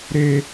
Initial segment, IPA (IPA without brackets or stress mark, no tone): ɾ